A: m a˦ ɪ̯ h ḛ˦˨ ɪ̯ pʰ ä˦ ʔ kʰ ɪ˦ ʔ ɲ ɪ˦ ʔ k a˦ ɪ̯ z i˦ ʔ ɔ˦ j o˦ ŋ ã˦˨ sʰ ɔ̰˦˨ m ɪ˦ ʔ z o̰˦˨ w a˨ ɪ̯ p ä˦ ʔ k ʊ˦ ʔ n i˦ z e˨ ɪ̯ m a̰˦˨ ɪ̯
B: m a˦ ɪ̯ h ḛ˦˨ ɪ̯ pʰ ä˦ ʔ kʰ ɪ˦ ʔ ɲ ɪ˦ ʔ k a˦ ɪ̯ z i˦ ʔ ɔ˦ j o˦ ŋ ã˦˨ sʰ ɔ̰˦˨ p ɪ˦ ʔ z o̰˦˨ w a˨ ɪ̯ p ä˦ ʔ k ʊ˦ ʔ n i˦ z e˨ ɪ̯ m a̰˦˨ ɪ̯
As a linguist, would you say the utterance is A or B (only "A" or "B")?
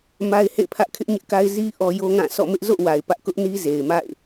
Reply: A